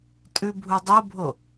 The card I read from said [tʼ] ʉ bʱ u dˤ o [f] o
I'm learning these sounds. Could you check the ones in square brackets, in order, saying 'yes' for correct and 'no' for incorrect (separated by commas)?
yes, no